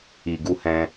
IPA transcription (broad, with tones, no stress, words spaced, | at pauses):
i˨ɡu˧ hɛ̃˧